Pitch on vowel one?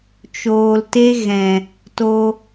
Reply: low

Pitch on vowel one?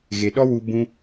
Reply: low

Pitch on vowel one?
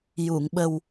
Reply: low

